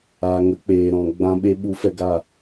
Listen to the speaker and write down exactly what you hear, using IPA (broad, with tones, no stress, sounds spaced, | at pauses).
aː˨ ŋ ə˨˦ k͡p eː˨ ɾ ɔ̃˨ ɡ͡b ã˧ ɓ e˧ ɓ u˨˦ f ɛ˧ ɡ a˦˨